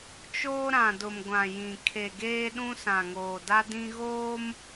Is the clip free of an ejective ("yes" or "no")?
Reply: yes